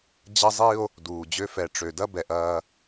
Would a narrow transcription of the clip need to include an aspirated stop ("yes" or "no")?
no